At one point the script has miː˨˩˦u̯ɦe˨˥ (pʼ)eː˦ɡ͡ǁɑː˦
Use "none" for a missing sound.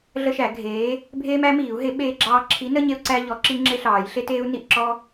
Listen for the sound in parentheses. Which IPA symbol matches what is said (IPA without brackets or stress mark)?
ɓ